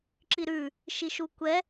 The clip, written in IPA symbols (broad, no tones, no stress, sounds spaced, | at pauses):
ǁ i ɾ ʉ | ʃ i ʃ u kʷ ɛ